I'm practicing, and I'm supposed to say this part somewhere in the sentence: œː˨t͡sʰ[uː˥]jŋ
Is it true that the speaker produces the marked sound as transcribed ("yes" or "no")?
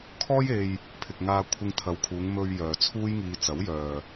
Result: yes